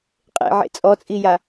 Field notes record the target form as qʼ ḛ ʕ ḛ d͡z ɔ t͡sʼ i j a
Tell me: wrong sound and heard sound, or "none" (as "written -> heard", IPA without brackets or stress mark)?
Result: d͡z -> t͡sʼ